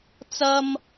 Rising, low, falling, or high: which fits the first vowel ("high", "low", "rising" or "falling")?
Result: high